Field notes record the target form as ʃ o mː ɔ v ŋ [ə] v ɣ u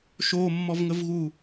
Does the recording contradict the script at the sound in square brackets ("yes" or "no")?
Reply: no